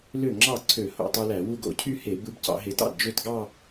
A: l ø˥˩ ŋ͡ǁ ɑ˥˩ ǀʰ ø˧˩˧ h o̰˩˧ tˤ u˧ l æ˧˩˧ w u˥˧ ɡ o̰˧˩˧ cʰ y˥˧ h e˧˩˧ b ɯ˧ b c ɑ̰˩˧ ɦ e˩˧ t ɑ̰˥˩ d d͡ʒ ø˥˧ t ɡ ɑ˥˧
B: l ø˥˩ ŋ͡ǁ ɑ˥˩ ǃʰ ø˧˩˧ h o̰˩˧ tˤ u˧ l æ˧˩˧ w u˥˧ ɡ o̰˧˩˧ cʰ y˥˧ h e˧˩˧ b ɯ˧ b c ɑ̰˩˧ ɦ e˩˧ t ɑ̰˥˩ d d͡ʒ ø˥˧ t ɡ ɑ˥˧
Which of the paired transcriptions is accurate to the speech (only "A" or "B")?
A